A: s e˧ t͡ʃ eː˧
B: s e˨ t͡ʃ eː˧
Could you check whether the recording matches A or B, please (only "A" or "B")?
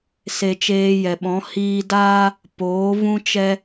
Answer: A